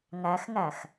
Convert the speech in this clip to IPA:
ŋæxŋæx

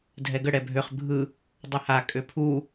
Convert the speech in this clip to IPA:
dʱɛɡə ɽɛbʱøχ bʱɯ | dˤœha kʼøpʰu

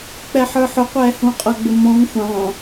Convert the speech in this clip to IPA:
k͡pɛħə˞ħʊqʷɛː hũqʼʌɡ͡bɪ mɔ̃ŋ xʷɑ̃

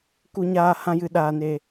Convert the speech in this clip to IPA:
ku˧ɲaː˧ hã˧jɨ˨ɗaː˨ne˨

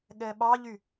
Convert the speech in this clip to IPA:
ɠɛɓɑʎy

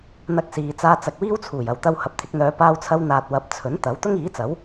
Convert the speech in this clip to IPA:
n̪ɐ˧k̚siː˨ t͡saː˧t͡sɐ˨k̚wiː˥wt͡sʰuː˨˩j ɐ˨wt̪ɐ˧w hɐ˨p̚t̪ʰɪ˧k̚n̪œː˨˧ paː˧wt͡sʰɐ˧w n̪aː˨t̚wɐ˨˥p̚ t͡sʰɵ˨˥nt̪ɐ˨˥w t̪ʊ˥ŋiː˨˥t͡sɐ˨˥w

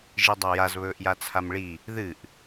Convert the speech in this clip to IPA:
ʒidˤajaz βɵːʔjat͡sʰamɭi | ðɨʔ

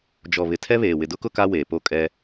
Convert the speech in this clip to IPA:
d͡ʒɔ˨ βɪ˨tʰɛ˦βeː˨ wɪ˨dʊ˦kʊ˦ ka˦weː˨po˦ kʼɛ˦

